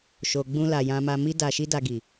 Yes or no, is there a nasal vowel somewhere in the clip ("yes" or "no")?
yes